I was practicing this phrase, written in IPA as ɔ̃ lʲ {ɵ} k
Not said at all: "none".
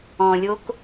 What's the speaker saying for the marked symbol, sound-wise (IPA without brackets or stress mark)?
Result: o